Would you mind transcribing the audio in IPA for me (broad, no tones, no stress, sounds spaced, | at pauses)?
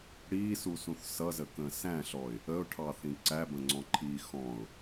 ɽ iː s u s ũ θ s ʌ z ə k ə̃ː s æ̃ ɬ ɔ ɪ̯ | ə ʊ̯ ʈʰ ɑ θ ĩ ǀ æ b ə̃ ŋ͡ǀ ɔ̃ ǃʰ iː x ɔ̃ ʊ̯